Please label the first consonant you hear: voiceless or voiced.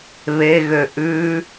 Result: voiced